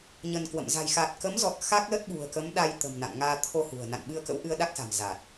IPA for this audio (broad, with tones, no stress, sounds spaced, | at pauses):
ɲ ə˧ n k w ə̰˧˨ m z a̤˨˩ j x a˨˩ t̚ k ə˨˦ m z ɔ˨˩ t̚ x a˦˥ k̚ l ə˦˥ t̚ ɓ ṳ˨˩ ə̯ k ə˨˦ m ɗ a˧ j t̪ ə̤˨˩ m n a̰˧˨ n ŋ aː˧ t̪ʰ o˧ h ṳ˨˩ ə̯ n a̰˧˨ n ɓ ɨ˧ ə̯ k ə̰˧˥ w ʔ ɨ˧ ə̯ ɗ a˦˥ k̚ s a̤˨˩ m z aː˨˩ t̚